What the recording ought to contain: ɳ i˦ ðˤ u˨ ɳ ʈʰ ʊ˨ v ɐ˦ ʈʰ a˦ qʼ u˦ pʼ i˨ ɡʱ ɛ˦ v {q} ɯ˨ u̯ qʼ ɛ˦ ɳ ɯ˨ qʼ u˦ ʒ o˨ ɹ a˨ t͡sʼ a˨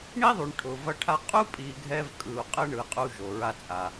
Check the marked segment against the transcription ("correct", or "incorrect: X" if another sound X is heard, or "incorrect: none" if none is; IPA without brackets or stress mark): incorrect: kʼ